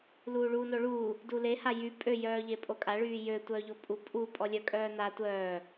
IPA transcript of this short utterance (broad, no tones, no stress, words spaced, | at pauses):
luːɭuːnoɭuː | dule hajy pʼø jœːʎepʼokʼa ɭyːjø tʷœːʎopʼu pʼu pʼɔlʲœ kʼœːna tʷœː